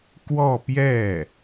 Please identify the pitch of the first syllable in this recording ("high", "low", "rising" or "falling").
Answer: falling